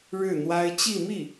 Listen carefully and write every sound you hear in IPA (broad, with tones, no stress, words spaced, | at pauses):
ɻɻ̩˥˩n̪wa˥ɪ̯ t͡ɕi˥˧mi˥˩